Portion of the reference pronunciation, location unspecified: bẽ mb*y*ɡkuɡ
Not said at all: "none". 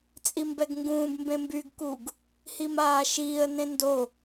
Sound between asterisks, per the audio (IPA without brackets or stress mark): y